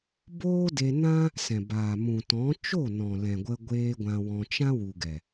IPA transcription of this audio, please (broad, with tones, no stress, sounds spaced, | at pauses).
b oː˦ d e˧ n ã˦ | s ɛ̃˨ b aː˨ m ũ˨ t ɔ̃˨˦ t͡ʃ o˦˨ n ɔ̃˨ l ɛ̃˨ ɡʷ ə˧ ɡʷ eː˧ ɡʷ ã˧ w ɔ̃˧ t͡ʃ ã˦ w u˨ ɡ ɛ˨